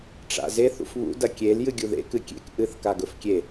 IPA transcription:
ʈ͡ʂa̰ze θṵfβṵ dɐkʲel jɨɡʲuðḛ kɨkʲḛk ʔɨθkaɡ ɵfkʲe

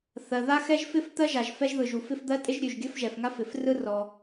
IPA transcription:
θɜ˩ða˥xɛ˥ʒfɪ˥f t̪ɜ˥ʒa˩ʒ fɛ˥ʒðɯ˩ʒu˩fɪ˥f d̪ɜ˥tʼɪ˥ʒ ɾʲʉ˩ʒɡʲə˥f ʒɛ˩fŋa˥fɪ˩frɯ˥ rɔ˩

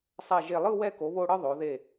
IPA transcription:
sˤɛ˧˩ʒe˧˩lˠɯ˥˧ wɛ˧ ko˩˧βo˧ɽɯ˧ ðˤo˩˧ðe˧˩

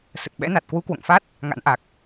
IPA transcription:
sə˨˩t̚ɓɛ̰˧˥na˨˩t̚ kwu˨˦kwo̰˧˨ŋfa˦˥t̚ | ŋa̰˧˥n ʔa˨˩k̚

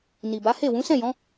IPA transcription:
ni˨ba˨˦he˦˨ wũ˨˦sɛ̃˦˨jɔ̃˨˦

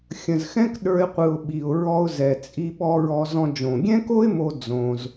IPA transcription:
xʲə̃˨zxɛ̃˦k ɗə˞˦ɪ̯qʷɯ˧ʊ̯ ɓi˨ʊ̯ɹɔ˧ʊ̯ zɛ˨ t͡sʼi˦ɓɔ˦ɹɔ˦ zɔ̃˧ d͡ʒõ˨ɡʲɛ̃˦ko˦ɪ̯mo˧ d͡zõ˦z

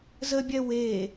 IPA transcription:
zəbʲɛ we

